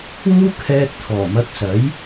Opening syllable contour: high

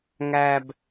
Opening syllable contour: low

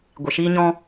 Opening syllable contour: low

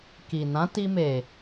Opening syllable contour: low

